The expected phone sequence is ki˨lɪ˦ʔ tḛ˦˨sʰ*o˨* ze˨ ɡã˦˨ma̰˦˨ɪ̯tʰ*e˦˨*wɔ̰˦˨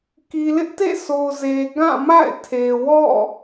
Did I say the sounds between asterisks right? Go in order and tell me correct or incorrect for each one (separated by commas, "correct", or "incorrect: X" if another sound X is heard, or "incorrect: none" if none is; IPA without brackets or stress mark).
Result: correct, incorrect: e˨